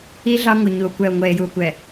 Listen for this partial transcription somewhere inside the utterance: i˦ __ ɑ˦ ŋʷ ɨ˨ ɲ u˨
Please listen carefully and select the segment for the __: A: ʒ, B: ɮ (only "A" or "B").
B